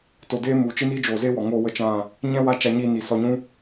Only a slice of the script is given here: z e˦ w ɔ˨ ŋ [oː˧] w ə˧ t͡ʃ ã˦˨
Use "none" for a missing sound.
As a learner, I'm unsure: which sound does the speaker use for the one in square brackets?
oː˧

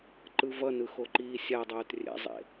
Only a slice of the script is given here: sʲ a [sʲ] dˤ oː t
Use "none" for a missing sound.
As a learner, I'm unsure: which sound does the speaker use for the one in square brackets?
none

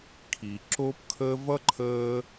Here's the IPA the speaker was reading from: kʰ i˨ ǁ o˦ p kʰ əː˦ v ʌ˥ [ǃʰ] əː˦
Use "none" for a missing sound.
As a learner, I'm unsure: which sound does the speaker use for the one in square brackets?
ǃʰ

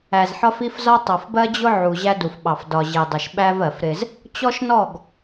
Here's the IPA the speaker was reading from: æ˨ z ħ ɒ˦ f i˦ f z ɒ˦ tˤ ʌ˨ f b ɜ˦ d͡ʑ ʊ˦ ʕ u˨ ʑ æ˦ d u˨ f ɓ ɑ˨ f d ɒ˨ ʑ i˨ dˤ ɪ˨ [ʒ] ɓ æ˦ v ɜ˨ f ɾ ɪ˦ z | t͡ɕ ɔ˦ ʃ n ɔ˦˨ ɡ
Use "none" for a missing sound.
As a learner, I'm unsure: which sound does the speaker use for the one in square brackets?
ʃ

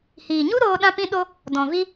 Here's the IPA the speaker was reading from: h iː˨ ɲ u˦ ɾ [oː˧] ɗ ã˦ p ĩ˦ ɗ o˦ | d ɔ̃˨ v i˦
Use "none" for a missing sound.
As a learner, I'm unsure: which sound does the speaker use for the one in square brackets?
oː˧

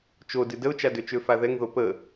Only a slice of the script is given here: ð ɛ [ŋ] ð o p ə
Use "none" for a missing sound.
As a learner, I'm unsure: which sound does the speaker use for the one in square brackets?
ŋ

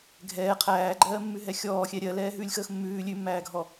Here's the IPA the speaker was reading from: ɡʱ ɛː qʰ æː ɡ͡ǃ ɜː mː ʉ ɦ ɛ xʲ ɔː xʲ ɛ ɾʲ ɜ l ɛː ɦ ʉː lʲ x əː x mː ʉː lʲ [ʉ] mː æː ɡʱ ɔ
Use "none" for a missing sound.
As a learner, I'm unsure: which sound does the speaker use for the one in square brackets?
ʉ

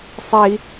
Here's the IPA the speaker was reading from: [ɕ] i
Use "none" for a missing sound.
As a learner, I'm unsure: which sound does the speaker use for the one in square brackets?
sˤ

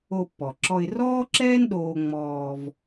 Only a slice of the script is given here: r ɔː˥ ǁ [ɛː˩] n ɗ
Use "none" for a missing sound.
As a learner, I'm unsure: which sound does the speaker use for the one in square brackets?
ɛː˥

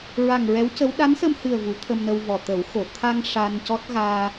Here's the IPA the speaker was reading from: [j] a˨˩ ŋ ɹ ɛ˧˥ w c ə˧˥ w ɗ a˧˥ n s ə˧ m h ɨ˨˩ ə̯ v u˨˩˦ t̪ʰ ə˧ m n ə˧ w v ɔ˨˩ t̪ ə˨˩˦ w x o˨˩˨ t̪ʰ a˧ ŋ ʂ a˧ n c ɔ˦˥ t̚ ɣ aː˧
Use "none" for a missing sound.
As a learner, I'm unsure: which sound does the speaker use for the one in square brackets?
ɹ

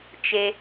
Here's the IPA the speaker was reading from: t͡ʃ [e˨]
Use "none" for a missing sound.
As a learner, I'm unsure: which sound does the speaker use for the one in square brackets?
e˨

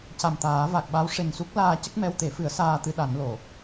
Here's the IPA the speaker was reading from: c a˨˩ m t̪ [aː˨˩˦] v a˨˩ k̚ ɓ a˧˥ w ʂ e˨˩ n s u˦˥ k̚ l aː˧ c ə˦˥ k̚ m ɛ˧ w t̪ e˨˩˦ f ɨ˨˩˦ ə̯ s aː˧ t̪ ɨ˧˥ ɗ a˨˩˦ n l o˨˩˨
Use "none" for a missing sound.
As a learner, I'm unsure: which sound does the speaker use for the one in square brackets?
aː˨˩˦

